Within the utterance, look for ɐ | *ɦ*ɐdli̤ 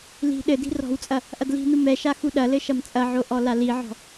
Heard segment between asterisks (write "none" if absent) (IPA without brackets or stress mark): ʔ